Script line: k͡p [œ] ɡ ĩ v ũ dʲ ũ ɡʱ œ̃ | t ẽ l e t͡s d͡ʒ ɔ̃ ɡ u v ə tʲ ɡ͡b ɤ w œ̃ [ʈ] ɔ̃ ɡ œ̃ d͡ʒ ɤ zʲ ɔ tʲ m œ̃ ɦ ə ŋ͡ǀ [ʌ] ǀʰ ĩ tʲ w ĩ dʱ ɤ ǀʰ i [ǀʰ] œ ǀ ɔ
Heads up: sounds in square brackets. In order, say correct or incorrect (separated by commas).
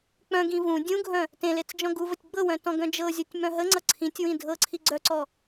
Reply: incorrect, incorrect, correct, incorrect